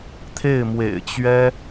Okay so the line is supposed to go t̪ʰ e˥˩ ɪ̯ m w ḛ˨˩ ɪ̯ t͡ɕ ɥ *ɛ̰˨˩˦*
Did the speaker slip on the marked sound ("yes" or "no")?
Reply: yes